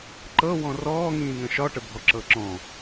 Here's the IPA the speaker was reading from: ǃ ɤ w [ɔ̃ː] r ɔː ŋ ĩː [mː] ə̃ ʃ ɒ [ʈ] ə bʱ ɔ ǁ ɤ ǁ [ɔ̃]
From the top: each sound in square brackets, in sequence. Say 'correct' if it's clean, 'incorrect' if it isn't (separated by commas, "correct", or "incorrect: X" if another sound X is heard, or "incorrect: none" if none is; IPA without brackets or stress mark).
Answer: incorrect: ɔ̃, incorrect: ŋ, correct, correct